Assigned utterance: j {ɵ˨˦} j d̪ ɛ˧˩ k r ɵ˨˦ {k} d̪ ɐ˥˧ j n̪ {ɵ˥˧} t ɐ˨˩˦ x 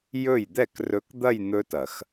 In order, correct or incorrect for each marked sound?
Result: incorrect, correct, incorrect

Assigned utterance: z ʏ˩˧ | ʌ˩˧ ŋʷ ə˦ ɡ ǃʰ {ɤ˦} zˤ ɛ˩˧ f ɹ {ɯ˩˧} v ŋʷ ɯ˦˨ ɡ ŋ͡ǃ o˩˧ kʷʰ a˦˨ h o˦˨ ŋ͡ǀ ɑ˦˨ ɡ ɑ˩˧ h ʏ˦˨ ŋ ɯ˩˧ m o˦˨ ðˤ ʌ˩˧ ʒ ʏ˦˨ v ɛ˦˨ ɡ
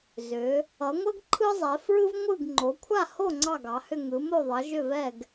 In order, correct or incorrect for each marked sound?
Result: incorrect, incorrect

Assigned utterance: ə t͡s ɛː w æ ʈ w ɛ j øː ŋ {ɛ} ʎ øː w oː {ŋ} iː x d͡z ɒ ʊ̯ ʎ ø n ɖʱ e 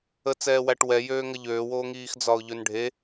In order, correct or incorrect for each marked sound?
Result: incorrect, correct

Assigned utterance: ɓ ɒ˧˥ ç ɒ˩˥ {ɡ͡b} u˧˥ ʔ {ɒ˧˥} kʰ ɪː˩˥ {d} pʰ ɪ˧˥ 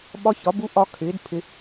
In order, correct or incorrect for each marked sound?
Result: incorrect, correct, correct

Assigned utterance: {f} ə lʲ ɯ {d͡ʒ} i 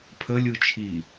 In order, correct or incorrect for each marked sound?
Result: incorrect, incorrect

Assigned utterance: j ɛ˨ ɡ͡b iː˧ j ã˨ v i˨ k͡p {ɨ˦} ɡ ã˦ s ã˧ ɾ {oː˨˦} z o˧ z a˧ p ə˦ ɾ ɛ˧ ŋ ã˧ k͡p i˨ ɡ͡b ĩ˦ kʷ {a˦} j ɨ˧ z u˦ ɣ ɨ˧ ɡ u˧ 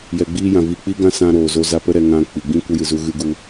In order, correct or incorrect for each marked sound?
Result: incorrect, incorrect, incorrect

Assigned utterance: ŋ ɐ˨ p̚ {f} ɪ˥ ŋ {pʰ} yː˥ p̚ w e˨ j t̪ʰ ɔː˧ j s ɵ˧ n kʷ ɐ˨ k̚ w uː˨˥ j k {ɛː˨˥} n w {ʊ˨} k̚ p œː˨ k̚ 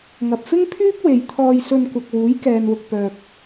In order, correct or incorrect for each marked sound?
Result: correct, correct, incorrect, correct

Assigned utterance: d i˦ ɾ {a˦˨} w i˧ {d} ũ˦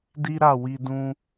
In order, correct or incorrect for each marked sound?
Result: correct, correct

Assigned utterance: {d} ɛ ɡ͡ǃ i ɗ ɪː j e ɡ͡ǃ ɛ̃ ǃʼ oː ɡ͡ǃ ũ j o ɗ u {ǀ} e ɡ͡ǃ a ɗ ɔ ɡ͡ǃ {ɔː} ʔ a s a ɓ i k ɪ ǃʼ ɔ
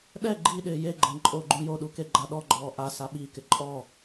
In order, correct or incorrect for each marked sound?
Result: incorrect, incorrect, correct

